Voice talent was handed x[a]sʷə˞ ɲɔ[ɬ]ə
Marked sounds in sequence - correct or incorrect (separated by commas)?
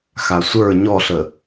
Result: correct, correct